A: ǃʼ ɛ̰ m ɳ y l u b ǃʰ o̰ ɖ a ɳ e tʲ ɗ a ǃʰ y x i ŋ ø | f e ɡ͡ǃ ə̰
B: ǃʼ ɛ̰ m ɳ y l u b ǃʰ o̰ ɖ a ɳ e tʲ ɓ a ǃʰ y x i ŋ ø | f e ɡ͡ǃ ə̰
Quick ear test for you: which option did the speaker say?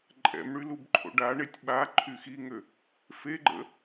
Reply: B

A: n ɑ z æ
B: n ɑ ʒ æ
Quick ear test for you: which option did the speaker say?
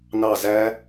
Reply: A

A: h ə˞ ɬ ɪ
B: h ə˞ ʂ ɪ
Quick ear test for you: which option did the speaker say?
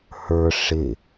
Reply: B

